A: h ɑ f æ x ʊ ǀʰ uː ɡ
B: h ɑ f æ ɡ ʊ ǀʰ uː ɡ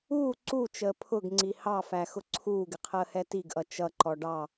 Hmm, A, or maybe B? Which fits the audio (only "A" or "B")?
A